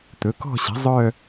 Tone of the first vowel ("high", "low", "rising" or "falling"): rising